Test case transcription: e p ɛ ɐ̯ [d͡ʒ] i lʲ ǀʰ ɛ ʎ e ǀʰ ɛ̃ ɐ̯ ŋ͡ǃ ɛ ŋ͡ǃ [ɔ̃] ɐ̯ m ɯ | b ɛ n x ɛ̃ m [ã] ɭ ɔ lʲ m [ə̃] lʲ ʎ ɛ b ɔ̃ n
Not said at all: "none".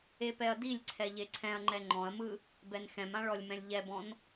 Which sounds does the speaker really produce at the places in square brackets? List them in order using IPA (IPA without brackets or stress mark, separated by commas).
d, ɔ̃, ã, ɛ̃